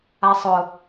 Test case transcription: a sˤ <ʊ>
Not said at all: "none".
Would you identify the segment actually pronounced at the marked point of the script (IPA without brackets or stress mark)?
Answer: ʊ